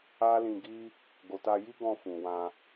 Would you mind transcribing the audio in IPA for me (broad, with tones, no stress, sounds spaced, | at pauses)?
a˦ l ĩ˧ ɡ i˦ | ɡ o˨ t a˧ j i˦ ɡ ɔ̃˧ f ũ˨ w ã˧